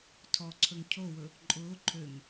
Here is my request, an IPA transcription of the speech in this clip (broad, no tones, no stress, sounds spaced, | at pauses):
tʰ ɔ ǀʰ ɵ ŋ cʰ o w ɵ | ǃʼ ʊː ǃʰ ø ŋ